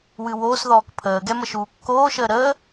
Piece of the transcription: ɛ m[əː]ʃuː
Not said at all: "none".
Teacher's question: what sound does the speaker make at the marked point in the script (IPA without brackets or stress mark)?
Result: ə